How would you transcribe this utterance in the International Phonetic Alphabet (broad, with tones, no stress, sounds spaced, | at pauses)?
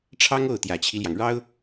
ʈ͡ʂʰ ɑ˥ ŋ o˥˩ ʊ̯ t̪ j ä˨˩ t͡ɕʰ i˦ l j ɑ˩ ŋ ɻ ɑ˥ ʊ̯